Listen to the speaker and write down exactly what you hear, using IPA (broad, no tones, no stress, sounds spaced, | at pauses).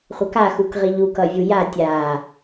χʷ ʌ k a x u k ʁ i ʎ u k ʌ vʲ u j a tʲ a